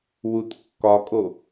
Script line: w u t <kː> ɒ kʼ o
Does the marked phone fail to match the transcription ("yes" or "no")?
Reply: no